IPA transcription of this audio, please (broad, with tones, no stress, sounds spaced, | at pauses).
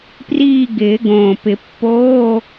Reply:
p r iː˦˨ ɡ ɪː˨˩˦ ɡ õː˨˩ p ɪ˨˩˦ pː oː˧˥˧